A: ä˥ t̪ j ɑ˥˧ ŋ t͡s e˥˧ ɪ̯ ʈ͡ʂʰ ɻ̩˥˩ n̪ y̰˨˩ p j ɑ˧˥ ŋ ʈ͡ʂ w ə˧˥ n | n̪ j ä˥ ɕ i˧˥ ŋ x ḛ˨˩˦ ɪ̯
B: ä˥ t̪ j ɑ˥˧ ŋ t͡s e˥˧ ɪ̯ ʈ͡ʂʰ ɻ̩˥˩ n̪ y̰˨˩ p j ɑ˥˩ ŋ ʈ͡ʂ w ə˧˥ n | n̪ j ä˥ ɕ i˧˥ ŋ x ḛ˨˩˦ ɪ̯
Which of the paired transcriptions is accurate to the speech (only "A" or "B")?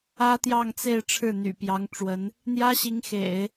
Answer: A